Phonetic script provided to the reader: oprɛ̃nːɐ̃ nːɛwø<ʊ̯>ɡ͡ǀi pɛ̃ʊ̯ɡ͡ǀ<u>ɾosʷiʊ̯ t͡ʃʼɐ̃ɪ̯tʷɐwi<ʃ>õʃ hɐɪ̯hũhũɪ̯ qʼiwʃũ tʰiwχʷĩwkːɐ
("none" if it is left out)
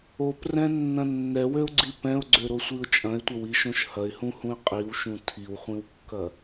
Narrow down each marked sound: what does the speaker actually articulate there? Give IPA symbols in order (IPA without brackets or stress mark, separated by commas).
ʊ̯, ø, ʃ